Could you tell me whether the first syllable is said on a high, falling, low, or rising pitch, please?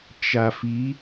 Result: low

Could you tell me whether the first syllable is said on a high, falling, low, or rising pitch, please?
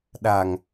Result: low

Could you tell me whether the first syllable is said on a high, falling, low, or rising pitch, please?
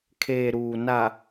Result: low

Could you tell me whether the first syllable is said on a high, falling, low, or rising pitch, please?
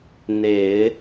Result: low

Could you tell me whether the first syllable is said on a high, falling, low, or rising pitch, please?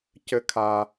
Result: high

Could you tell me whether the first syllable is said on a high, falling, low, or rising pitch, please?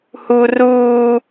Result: high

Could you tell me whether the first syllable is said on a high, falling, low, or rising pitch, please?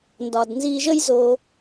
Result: low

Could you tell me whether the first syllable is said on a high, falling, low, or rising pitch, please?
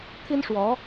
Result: high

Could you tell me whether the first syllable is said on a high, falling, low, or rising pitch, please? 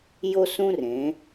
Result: high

